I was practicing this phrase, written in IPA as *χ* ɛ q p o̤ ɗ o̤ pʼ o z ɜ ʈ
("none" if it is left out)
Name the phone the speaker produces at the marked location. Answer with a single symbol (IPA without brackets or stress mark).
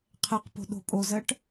qʰ